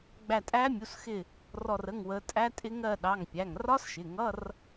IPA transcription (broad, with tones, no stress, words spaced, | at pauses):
ɡ͡bæ˧˩tʼæ˦˥ mʲu˩˧˩sxɪ˧˩ | rɔ˧˩rə˩˧˩ŋwə˩˧ tʼæ˦˥tʼɪ˦˥ŋɜ˥˨ ɗɑ˩˧˩ŋpʲæ˩˧˩ŋrɒ˦˥sʃɪ˩˧˩ ŋʌ˧˥˧r